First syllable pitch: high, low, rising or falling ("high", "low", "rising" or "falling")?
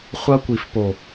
high